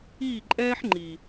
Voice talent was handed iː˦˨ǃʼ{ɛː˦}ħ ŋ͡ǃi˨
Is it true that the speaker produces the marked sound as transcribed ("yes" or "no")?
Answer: yes